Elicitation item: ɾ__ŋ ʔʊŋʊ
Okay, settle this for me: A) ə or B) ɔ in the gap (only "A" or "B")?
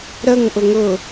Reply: A